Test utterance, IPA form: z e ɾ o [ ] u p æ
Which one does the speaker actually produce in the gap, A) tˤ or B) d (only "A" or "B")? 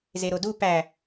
B